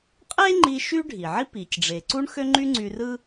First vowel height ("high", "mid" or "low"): mid